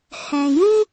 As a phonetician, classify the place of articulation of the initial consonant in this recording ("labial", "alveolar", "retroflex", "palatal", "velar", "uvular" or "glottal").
glottal